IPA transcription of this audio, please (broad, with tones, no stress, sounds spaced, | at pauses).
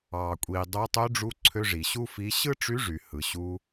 ɑ˩ kʷʼ i˩ dˤ o˧˥ tˤ ø˧˥ ɖ͡ʐ u˧˥ ǀʰ ø˧ ʐ i˩ ɕ u˥ f i˧˥ ɕ ɯ˥ ʈ͡ʂ y˧˥ ʐ y˩ h ɯ˩ ɕ u˧